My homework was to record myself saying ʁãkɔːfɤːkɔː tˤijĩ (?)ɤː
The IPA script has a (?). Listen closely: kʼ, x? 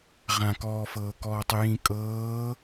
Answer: kʼ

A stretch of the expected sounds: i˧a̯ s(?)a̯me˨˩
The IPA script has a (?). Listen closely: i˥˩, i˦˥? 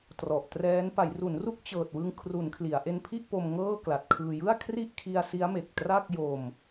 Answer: i˦˥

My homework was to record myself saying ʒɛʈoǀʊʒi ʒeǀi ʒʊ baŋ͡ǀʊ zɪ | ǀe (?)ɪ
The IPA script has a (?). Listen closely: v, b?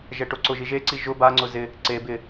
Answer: b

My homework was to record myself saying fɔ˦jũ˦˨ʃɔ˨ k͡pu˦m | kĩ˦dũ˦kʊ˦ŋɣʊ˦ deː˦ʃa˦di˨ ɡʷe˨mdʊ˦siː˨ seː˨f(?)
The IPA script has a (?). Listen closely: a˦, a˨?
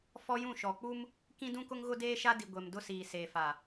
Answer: a˨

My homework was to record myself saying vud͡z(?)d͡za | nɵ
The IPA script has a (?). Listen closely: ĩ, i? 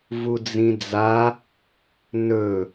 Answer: ĩ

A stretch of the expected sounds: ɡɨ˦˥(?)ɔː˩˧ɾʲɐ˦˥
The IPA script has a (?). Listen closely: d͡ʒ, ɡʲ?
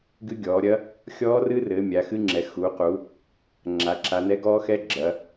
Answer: ɡʲ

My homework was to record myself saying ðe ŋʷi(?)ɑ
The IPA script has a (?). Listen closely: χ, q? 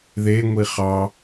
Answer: χ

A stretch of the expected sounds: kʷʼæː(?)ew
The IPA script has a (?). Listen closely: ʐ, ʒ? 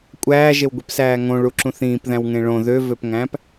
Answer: ʒ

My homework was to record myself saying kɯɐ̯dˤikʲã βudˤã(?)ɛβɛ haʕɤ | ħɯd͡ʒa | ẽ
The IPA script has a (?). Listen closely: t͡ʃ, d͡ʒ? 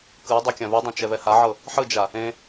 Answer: t͡ʃ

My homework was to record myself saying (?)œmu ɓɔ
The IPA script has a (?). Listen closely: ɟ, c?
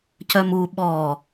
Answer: c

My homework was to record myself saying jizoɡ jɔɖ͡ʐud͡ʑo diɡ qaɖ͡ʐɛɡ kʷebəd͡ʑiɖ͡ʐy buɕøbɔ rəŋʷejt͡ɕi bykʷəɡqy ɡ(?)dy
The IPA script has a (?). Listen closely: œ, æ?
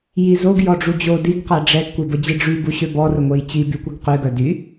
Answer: œ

